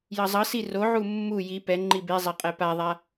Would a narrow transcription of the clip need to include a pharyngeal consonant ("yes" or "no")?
yes